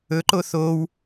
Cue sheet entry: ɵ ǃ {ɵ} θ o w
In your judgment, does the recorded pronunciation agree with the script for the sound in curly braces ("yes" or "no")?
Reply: no